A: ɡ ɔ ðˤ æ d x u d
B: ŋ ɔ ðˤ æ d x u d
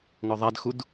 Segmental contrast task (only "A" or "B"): B